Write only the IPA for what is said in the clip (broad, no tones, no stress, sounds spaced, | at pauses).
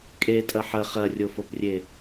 kʼ e tʼ ɐ ħ ɐ χ ɐ rʲ o f o p rʲ e